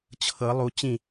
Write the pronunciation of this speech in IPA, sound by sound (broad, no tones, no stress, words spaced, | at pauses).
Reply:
t͡ɕʰɤ lˠu t͡ɕĩ